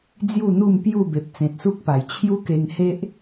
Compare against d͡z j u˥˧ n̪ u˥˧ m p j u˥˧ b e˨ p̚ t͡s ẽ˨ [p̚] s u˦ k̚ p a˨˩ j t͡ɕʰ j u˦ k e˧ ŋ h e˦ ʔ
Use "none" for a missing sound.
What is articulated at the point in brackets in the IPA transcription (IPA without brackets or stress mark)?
t̚